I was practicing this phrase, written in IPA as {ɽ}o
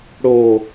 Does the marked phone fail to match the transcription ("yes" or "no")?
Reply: no